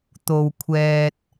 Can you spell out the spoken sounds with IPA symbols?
t̪o˧wkʷʰɛː˧t̚

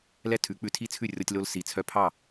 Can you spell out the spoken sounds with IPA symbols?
lɛ˥tʰʉ˩˥k͡pʉ˧ tʰi˥t͡sʰʉ˥˩rʲɔ˧tʲ lo˧lsi˩ t͡sʰœ˧pʰɑ˥˩

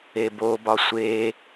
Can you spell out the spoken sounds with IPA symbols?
ebobɒ sʷe

